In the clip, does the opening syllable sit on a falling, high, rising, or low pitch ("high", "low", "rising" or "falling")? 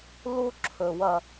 high